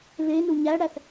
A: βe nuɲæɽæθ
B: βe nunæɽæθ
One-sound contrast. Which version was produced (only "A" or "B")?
A